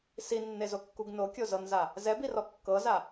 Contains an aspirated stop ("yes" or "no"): no